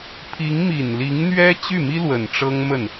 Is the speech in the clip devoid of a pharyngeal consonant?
yes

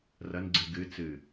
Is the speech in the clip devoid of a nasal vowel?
yes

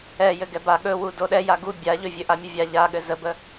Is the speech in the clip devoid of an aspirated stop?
yes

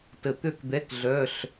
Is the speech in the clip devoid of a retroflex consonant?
yes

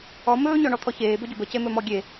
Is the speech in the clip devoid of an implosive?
yes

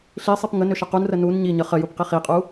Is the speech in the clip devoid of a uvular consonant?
no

